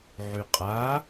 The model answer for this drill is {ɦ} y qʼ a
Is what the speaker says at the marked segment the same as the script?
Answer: no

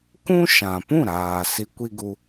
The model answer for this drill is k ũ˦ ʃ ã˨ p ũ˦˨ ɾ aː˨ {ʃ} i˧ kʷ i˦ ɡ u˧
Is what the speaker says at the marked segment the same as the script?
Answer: no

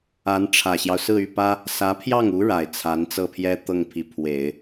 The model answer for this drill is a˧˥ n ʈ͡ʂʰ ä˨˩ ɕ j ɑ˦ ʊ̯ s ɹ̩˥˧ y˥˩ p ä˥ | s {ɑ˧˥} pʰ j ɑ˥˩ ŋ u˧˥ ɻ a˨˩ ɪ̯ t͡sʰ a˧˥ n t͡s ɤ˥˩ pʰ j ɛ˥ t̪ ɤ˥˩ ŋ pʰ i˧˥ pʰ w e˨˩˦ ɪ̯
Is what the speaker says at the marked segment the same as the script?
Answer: no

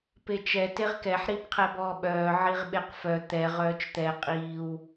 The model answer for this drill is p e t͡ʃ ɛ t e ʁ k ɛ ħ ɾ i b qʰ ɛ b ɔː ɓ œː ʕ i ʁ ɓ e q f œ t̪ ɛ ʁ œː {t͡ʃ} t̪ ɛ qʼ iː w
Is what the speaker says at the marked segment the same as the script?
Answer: yes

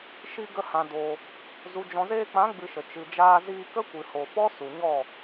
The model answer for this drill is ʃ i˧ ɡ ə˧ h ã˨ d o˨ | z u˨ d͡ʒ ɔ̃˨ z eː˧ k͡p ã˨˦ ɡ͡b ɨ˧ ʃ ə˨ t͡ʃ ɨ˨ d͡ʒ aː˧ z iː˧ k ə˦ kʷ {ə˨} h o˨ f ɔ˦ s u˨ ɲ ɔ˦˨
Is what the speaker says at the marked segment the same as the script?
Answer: no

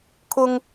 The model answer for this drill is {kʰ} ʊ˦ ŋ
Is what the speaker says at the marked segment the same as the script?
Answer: yes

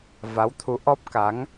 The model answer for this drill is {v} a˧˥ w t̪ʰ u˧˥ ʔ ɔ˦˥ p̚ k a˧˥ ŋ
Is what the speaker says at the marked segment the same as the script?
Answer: yes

